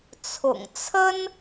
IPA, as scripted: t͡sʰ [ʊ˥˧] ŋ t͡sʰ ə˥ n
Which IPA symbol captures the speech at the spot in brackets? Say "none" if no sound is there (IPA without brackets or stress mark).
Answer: ʊ̰˨˩